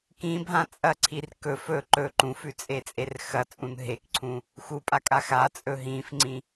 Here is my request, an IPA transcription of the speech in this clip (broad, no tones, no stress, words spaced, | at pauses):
kĩbʱã t͡sʼɐǀʰir kɵ fɵ ǃɵ ǃũfʉt͡sʼet͡sʼer xɐt͡sʼũn ɦekǀʰũ | xupʼakʼa xat͡sʼɵ ɦĩfŋ͡ǀĩ